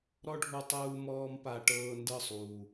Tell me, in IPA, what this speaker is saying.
ɾ ɔ˦ ɖʱ u˧ tˤ uː˧ m ɔː˦ m p a˧ ʈ ɤː˧ n d ɤ˦˨ sˤ uː˨

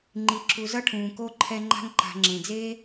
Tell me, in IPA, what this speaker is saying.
ŋ͡ǃ i˨ ǁ u˨ z ʌ˥ ʈʰ ũː˩ k o˥ ǃʰ ɛ˦ ŋ͡ǃ a̤˥ ŋ ǃ a̤˨ ŋ͡ǁ ẽ˩ d͡z eː˥

